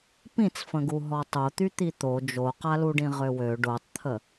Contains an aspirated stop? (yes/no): yes